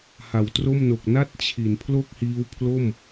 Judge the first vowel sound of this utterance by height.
low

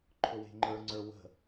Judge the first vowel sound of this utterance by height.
high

